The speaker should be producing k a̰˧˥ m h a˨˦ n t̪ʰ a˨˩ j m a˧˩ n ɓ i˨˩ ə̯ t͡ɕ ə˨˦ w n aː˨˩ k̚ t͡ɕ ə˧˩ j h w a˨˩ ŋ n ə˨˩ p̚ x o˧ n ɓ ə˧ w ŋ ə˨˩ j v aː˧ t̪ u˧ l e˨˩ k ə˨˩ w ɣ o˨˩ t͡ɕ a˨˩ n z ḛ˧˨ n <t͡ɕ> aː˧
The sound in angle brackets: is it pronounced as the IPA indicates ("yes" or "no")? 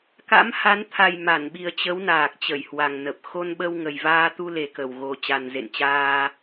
yes